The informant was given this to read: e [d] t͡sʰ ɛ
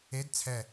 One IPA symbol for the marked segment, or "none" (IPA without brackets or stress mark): d